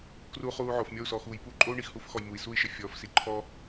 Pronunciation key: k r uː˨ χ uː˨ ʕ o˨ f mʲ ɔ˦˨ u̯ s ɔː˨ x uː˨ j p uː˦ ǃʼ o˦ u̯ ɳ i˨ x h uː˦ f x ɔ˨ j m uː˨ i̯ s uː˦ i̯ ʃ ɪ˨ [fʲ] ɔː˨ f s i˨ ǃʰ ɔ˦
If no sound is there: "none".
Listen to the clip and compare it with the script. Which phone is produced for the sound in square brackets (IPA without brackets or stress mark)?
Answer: fʲ